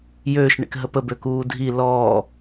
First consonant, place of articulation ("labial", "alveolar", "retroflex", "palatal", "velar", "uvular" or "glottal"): palatal